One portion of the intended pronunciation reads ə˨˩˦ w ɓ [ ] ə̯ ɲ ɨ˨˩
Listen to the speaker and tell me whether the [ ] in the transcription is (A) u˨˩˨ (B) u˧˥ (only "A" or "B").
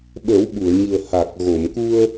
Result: A